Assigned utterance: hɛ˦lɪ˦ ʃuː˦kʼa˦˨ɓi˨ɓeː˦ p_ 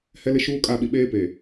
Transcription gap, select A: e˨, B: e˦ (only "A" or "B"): A